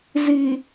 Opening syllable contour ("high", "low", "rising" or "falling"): low